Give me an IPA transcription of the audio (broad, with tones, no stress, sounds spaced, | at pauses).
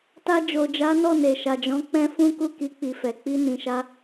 t a˧ d͡ʒ o˨ d͡ʒ a˨˦ n ɔ˦˨ n e˨ ʃ a˨ d͡ʒ ɔ̃˨˦ k͡p ɛ̃˦ f ũ˦ k u˦˨ k i˨˦ k͡p i˧ f ɛ˨ k͡p i˧ n ĩ˨ ʃ a˧